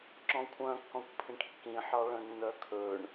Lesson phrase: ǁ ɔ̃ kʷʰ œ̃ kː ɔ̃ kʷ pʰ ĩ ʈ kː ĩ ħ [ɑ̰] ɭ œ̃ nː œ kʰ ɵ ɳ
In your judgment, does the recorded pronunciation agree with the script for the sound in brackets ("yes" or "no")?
no